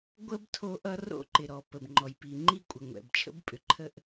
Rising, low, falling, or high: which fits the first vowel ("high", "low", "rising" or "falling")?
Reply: high